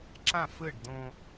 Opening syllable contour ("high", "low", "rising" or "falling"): falling